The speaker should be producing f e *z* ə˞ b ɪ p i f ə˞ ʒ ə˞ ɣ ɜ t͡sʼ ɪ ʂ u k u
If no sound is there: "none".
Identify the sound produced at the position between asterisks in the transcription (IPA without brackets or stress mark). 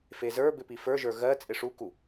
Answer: z